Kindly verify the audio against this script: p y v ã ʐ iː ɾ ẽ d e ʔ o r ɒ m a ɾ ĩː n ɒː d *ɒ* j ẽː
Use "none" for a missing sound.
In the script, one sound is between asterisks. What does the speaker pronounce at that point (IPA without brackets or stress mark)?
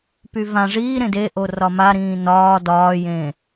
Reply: ɒː